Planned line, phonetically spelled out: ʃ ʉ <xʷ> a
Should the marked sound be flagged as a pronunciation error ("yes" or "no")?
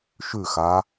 yes